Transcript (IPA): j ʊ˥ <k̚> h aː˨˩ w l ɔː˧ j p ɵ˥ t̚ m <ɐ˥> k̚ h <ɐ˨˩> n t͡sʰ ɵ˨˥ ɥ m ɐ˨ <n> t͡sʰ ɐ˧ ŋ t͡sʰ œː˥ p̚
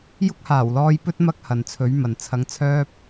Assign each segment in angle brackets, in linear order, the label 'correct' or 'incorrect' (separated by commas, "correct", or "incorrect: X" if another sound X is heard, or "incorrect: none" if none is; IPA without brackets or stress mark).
correct, correct, incorrect: ɐ˨, correct